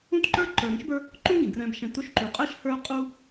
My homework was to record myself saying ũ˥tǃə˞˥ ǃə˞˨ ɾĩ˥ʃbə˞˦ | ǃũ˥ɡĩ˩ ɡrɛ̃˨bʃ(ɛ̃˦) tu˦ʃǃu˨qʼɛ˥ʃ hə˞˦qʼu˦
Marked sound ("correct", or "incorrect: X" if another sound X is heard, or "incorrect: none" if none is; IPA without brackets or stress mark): incorrect: ɛ̃˨